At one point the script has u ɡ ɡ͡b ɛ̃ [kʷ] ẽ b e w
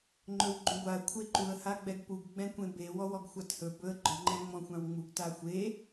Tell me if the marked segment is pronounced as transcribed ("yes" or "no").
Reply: yes